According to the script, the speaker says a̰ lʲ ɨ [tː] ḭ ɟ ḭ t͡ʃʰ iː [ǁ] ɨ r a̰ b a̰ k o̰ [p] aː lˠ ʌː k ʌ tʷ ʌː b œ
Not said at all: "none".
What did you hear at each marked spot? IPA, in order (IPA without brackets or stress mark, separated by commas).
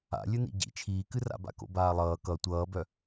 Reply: n, k, b